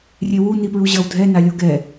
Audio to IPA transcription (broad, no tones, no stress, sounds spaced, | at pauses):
rʲ e w u n i p ɹ u ʑ ʌ w dʱ ɛ n a lʲ o ɡ ɛ